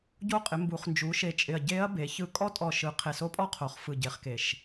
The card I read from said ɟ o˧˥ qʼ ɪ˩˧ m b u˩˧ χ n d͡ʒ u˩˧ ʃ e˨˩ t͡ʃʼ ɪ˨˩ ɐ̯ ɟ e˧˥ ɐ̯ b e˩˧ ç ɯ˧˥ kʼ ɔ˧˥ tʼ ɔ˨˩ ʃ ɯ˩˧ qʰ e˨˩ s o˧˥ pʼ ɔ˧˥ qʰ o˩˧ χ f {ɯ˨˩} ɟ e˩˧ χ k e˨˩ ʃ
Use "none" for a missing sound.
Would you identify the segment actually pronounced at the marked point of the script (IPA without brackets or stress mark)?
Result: ɯ˨˩